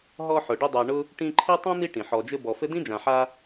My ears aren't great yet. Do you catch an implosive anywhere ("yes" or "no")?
no